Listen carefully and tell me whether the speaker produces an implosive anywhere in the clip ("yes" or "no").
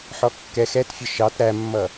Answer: no